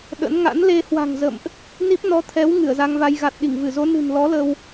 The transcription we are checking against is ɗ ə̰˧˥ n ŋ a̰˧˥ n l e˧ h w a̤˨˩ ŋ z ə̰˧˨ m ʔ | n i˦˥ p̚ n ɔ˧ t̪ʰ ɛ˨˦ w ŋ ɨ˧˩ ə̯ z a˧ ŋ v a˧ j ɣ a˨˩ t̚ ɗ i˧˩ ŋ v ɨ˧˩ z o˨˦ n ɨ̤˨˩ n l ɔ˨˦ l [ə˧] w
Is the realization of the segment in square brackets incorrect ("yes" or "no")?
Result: no